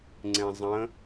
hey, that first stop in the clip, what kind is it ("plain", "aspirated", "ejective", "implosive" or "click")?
click